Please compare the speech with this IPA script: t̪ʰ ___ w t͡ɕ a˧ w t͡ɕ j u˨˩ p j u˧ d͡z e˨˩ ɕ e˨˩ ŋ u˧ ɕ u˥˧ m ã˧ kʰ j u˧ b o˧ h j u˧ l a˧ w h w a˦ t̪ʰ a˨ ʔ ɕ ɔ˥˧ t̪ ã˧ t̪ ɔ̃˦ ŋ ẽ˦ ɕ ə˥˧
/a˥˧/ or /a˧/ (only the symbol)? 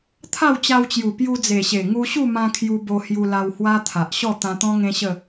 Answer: a˥˧